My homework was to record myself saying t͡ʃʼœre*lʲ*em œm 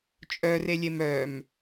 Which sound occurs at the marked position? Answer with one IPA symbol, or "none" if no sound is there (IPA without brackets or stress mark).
lʲ